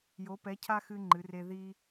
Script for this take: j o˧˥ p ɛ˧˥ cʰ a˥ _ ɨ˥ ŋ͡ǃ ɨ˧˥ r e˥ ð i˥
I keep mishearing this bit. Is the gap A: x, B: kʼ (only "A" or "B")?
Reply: A